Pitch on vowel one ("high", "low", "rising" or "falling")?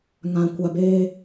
low